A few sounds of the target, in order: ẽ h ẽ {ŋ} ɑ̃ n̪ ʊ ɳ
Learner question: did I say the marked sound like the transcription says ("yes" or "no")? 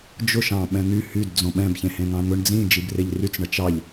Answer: yes